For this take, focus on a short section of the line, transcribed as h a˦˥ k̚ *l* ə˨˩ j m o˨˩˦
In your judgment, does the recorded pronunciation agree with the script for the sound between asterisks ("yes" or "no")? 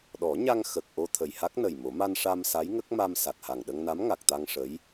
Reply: no